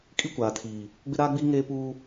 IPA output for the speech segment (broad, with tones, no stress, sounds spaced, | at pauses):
kʼ i˦ kʷ aː˨ tʰ iː˨ | ɡ͡b ɪ˦ ɾ aː˦ ɡ͡b iː˦ ŋ eː˦ p uː˦